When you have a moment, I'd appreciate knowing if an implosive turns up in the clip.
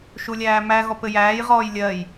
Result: no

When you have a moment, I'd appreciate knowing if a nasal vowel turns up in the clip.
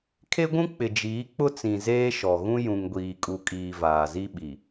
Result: yes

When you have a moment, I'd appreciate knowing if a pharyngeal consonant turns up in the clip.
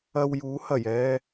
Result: no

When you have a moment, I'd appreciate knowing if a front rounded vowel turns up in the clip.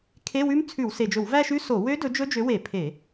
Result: yes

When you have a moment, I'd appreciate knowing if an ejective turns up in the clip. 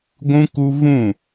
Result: no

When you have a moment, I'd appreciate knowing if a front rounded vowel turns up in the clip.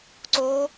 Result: no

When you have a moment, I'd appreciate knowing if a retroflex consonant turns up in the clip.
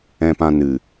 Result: no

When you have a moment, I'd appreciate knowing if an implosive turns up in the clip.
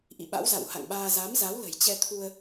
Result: yes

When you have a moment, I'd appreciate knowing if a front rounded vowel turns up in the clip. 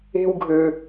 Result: yes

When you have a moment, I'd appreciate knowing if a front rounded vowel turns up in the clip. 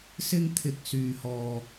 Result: yes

